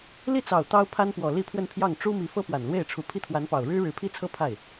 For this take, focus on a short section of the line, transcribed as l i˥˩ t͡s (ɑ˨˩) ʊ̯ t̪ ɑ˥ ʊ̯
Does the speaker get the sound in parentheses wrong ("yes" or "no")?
no